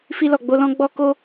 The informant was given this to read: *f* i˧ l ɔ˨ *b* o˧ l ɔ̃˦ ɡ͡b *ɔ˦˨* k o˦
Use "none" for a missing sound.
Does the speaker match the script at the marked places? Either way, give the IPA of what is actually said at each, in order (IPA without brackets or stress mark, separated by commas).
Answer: f, ɡ͡b, ɔ˦